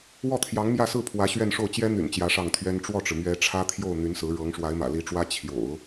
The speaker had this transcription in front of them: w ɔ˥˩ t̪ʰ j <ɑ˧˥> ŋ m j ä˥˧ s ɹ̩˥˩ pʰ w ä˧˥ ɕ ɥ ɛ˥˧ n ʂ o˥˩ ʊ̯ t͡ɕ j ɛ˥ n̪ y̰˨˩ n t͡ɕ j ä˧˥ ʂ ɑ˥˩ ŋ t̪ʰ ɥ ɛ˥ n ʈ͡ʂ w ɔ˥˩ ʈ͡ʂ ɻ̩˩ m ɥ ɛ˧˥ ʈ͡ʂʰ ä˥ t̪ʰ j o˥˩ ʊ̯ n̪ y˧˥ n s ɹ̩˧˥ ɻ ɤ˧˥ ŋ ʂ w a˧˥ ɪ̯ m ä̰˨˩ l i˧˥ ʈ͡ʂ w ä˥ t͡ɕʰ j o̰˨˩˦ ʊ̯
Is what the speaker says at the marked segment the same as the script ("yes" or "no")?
yes